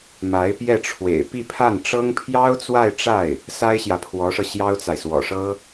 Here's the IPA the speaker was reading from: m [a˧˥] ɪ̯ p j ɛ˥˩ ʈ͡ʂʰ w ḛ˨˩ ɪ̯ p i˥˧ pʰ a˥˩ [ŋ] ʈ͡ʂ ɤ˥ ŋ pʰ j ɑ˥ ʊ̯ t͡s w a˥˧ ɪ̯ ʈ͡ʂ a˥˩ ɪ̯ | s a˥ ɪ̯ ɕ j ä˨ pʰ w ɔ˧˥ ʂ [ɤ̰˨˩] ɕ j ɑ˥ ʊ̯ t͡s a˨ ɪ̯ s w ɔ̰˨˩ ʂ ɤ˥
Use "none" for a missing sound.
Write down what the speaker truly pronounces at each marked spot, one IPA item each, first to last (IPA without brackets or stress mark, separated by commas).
a˧˥, n, ɤ˧